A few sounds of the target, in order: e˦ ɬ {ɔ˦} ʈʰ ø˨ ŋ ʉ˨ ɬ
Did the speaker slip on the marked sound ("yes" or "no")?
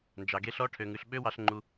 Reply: no